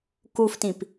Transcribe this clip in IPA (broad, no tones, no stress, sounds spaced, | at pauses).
k u f t ĩ p